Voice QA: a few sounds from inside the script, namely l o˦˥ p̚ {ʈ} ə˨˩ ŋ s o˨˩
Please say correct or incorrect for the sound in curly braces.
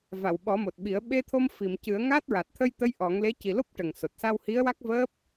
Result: correct